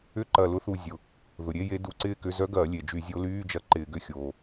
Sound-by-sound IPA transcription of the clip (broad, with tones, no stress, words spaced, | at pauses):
ʏ˥˧ǃɐ˧˩lʊ˧˥θu˧˩ zʲʊ˩ | ðʊ˩ɾʲe˧˥˧je˧˥ du˧˩˧ǀɪː˥˧kʏ˧˥˧ zœ˧˥ɡɐː˧˩˧ lʲe˩d͡ʒy˧˩˧zʲo˧˥ lyː˧˥˧d͡ʒɐ˧˥ ǃɪː˧˩˧ɡʏ˧˥˧xʲoː˩